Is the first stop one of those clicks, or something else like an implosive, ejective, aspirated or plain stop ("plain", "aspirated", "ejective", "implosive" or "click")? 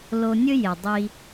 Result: plain